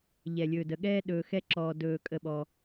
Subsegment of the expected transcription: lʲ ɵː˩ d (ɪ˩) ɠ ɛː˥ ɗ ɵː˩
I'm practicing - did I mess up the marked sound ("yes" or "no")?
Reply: yes